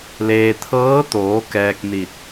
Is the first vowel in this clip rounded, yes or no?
no